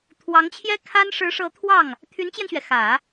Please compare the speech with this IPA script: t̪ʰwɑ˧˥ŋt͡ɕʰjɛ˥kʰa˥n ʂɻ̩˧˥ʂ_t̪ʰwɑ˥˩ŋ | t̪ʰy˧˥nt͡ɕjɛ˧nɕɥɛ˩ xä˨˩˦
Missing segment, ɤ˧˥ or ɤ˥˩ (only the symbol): ɤ˧˥